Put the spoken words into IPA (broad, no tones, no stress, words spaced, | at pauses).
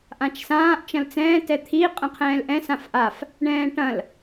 ʔãt͡ʃsãːʔ t͡ʃɐ̃lt͡sɛ̃ː tɛt̪ʰi qʼə̃qʰɛ̃ːlʔɛ̃ sãfʔaf | ɳɛ̃ːʈɐ̃l